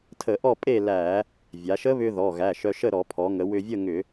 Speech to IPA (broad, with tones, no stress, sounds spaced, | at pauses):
tʰ ə˧˩˧ ʔ ɔ˥˨ pʼ e˥˨ l æ˧˩˧ | vʲ a˩˧ ʃ ə˦˥ β ʏ˧ ð ɔ˩˧˩ ɣ æ˩˧˩ ʃ œ˧ ʃ ə˥˨ ɾ ɔ˧˩˧ pʰ ɔ˩˧ ŋ ə˩˧ w ʏ˧ vʲ ə˥˨ ŋ ʏ˧˩˧